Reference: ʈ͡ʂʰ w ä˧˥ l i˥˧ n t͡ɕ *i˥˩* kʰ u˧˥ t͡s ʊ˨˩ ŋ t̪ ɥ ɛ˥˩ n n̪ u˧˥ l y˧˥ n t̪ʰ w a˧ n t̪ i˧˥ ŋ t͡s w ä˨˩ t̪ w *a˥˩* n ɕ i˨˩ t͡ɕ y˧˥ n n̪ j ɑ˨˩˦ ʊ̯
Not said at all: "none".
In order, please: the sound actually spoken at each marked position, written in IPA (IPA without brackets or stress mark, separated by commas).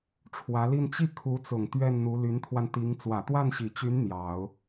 i˥˩, a˥˩